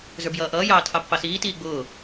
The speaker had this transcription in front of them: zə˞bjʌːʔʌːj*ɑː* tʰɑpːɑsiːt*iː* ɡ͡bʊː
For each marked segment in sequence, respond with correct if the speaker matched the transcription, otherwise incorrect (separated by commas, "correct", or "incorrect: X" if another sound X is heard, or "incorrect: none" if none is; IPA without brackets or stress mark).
correct, correct